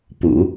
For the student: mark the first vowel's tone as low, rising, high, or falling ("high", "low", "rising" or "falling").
low